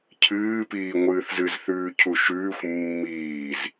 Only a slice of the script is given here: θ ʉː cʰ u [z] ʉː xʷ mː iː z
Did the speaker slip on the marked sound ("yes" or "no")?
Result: yes